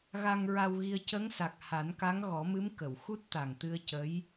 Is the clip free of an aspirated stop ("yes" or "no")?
yes